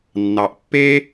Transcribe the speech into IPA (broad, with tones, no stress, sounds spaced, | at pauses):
nː ɑ˨ ʔ pː e˦